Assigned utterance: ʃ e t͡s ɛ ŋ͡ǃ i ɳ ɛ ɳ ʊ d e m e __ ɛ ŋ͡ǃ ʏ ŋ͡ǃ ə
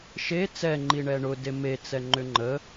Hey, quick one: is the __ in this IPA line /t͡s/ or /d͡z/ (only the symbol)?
t͡s